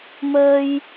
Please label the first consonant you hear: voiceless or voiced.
voiced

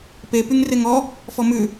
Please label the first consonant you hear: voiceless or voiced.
voiceless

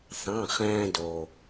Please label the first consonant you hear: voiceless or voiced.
voiceless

